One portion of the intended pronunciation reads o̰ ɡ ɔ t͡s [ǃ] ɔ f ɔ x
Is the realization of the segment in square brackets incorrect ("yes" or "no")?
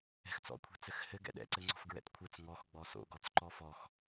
no